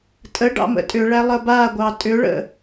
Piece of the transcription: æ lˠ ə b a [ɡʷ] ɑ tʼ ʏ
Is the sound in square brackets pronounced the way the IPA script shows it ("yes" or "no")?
yes